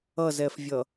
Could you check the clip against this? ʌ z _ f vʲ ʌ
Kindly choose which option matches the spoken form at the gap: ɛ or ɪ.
ɛ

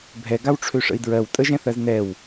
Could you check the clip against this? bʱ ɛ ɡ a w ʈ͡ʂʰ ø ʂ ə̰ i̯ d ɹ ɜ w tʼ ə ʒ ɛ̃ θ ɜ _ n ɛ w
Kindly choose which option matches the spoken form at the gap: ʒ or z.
z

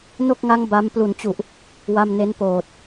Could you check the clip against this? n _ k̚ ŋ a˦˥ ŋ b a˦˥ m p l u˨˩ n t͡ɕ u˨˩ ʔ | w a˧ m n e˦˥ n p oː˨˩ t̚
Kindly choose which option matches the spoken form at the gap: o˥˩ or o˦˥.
o˥˩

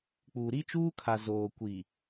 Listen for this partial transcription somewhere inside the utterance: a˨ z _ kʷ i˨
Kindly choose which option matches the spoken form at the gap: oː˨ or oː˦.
oː˨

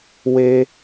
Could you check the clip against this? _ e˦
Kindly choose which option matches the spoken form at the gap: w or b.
w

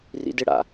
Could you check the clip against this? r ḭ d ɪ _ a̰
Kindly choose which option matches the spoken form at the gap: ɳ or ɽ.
ɽ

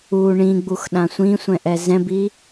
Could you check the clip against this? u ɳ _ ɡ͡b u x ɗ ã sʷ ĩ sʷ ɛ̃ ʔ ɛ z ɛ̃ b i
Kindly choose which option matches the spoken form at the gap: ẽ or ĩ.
ĩ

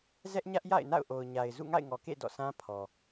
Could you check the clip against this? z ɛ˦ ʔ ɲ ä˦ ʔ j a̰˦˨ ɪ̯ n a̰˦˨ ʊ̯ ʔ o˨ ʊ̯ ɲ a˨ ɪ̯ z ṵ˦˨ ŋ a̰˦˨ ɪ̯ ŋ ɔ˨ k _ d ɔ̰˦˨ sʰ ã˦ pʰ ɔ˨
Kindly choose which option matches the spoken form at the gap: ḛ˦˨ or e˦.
ḛ˦˨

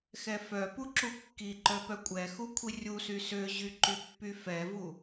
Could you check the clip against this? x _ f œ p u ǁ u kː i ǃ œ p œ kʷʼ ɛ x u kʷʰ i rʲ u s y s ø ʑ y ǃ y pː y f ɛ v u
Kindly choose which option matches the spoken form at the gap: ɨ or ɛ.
ɛ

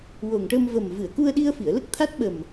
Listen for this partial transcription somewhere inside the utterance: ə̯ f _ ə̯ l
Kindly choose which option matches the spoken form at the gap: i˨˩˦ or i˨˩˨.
i˨˩˨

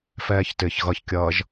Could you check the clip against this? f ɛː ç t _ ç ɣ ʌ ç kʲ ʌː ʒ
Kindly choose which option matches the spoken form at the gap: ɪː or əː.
ɪː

